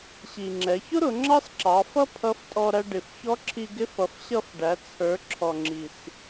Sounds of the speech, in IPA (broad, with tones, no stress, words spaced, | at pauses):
ɕi˩ŋ͡ǁɛ˩˧çʊ˥ɾʊ˩˧ ŋ͡ǁɑ˥sǁɑ˩˧fʌ˥ pʰʌ˧˥ftʼɔ˧ ɾæ˧ɖɪ˩fçɔ˧˥ ǁʰi˧ɡɪ˧˥fʌ˩˧f ɕʌ˧f ɖæ˩˧ t͡sʰə˞˩˧ ǁʰɔ˩ŋ͡ǁi˩s